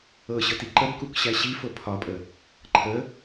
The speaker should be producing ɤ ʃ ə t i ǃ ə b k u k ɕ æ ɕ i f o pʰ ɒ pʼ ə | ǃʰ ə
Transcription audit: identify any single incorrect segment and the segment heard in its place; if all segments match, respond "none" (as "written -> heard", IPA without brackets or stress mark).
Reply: ʃ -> ɕ